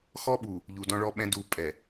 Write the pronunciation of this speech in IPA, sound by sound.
x ɔ˦ ɓ u˨ | ʎ u˨ d ɔ̃˦ ɭ ɔ˦ ɓ ɛ̃˦ d u˨ pʼ ɛ˨

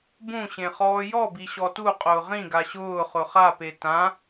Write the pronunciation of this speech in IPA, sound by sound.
b ũ ɕ ẽ χ ɔː j ɔ b i ɕ ɔ t u qʼ ʊː ʁ ĩ ɡ a ɕ ʊː χ ʊ χ a p e t ã

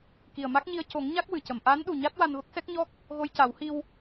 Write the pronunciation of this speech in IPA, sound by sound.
k i˨˩ ə̯ m a˦˥ k̚ ɲ i˧ ə̯ c o˨˩˦ ŋ ɲ a˦˥ k̚ w ɨ˨˩˨ c ə˨˩˨ m ʔ aː˧˥ n ɗ u˨˩ ɲ a˦˥ t̚ w a˧ n v ə˦˥ k̚ s ɛ˦˥ k̚ ɲ ɔ˦˥ k̚ | ɣ o˧ j c a˨˩˦ w h i˧ w

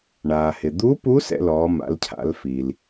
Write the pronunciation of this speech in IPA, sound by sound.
ɳ aː˩ h ɪ˩ d̪ u˧˥ p u˧˥ s ɛ̰˧ l ɔː˩˧ m a̰˩˧ l cʰ a̰˩˧ l f i˩ l

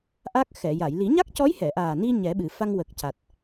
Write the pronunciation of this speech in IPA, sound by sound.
ʔ a˦˥ k̚ x ɛ˨˩˨ j a˨˩˨ j l i˨˩˦ ɲ a˦˥ k̚ c ɔ˧˥ j h ɛ˨˩˨ ʔ aː˨˩ n i˧ ɲ ɛ˨˩˦ ɓ ɨ˨˩˨ f a˧ ŋ w ə˨˩ k̚ c a˨˩ t̚

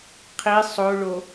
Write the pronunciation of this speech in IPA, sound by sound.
qʰ i sˤ o ɭ o

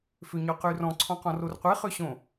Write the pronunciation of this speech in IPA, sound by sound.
f ø ɲ ɔ q y r ɔ̃ ǀʰ ɔ̃ q ɔ̃ r o r qʷ e χ ø ɕ õ

